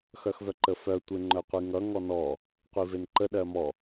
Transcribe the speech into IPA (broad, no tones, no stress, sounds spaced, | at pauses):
x œ x v œ ǃ ə f œ tʷ e ŋ͡ǃ œ qʷ i ŋ ʌ ŋ ɔ n ɔ | qʷ i v e n ǃ ə ɗ ɜ m ɔ